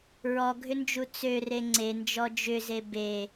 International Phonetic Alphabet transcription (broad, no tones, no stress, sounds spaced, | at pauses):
ɹ ɔ ɡʱ ʏ n d͡ʒ u t͡s ø r e ŋ͡ǀ e n d͡ʒ ɔ d͡ʒ ʏ z e b e